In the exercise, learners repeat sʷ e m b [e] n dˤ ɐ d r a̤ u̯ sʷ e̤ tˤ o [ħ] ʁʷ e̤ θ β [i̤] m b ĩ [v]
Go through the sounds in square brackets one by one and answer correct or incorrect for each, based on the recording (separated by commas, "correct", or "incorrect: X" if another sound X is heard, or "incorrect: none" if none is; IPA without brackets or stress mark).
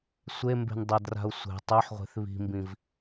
incorrect: e̤, correct, correct, correct